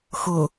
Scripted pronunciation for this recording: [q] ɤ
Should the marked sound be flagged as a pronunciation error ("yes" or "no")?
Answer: yes